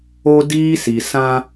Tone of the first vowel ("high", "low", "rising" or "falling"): high